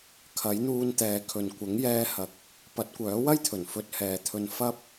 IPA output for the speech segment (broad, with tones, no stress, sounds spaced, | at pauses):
kʰ ɐ˨˥ j n̪ uː˧ n t̪ ɛː˨ kʰ ɵ˨ n kʷ ɐ˨˥ ŋ j ɛː˧ h ɐ˨˥ k̚ | p ɐ˨˥ t̚ kʷ œː˨˥ w ɐ˥ j t̪ʰ ɵ˨˩ n f ɵ˧ t̚ h ɛː˨ t̪ʰ ɵ˧ n f ɐ˥ p̚